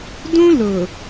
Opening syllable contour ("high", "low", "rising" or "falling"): high